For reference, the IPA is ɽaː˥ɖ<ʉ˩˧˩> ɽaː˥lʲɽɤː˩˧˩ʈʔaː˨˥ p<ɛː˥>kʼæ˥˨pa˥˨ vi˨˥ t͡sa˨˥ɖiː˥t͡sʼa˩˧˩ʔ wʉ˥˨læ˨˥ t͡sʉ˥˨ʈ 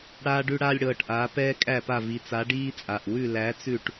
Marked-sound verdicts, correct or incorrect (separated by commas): incorrect, correct